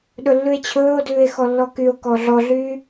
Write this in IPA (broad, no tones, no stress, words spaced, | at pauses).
ɗɵlːʉe̯t͡ɕʰɵːo̯dʉːe̯ xɔlːɔkyo̯kɔ ɮɔɮyː